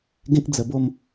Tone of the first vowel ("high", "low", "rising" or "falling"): high